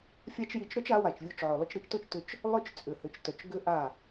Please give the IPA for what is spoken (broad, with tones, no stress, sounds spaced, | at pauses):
fʲ a˦ t͡ʃ j i˧ t͡ʃ ɾ œ˦ t͡ʃ a˨˦ w a˨ t͡ʃ vʲ o˧ t͡ʃ ʕ œ˨ lˠ ʏ˧ t͡ʃ ɾ i˧ t͡ʃ t o˦ t͡ʃ t ʏ˧ t͡ʃ | lˠ œ˦ t͡ʃ t͡sʼ ʏ˨ h ø˨ t͡ʃ t œ˨ t͡ʃ ɡ ʏ˦ ʔ a˦˨